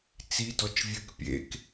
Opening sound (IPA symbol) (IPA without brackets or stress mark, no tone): t͡s